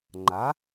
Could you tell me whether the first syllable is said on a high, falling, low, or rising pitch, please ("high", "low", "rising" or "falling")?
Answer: rising